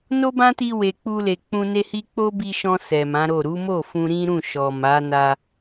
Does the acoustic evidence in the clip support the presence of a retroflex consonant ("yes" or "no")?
no